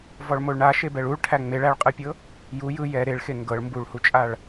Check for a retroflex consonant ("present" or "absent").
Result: present